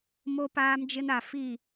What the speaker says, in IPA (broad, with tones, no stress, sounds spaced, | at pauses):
m o˦ p aː˦ m d͡ʒ ɪ˦ n a˨ f i˦˨